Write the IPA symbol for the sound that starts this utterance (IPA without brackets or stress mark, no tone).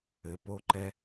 ɘ